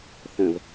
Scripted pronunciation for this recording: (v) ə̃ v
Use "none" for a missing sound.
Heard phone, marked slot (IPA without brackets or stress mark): θ